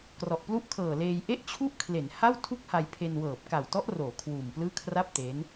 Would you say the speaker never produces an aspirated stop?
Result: no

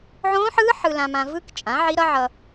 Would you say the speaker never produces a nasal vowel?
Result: no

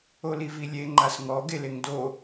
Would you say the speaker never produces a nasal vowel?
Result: yes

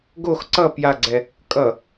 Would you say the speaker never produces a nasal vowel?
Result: yes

